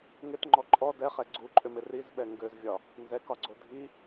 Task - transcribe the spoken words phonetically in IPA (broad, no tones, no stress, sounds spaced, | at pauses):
ŋ ɪ t ŋ͡ǃ ɔ ǃʼ ɔ d ɛ χ ɛ ɡ͡ǀ u ǃʼ ʏ m ɪ r i z ɓ ɛ ŋ ɡ ø z vʲ ɒ | n z ɛ k ɒ ɡ͡ǀ o dʱ i